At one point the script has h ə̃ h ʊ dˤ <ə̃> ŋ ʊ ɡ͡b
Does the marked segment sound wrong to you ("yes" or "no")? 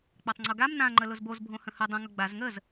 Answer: no